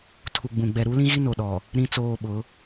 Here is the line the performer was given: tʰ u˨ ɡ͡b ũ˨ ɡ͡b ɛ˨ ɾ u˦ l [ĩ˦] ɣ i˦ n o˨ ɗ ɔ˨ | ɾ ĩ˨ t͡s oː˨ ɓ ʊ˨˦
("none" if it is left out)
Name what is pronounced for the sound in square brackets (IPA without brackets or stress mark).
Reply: ĩ˦